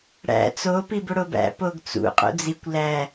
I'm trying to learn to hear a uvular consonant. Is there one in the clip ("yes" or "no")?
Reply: yes